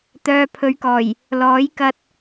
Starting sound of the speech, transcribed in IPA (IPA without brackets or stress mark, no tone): t̪